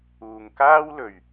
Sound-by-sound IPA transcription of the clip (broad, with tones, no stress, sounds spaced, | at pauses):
uː˨ ŋ k aː˥ w l ɵ˨ ɥ